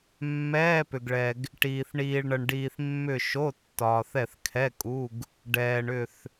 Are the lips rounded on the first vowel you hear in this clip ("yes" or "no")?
no